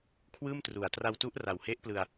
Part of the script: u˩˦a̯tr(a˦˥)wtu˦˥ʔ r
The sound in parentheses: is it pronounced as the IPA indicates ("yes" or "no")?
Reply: no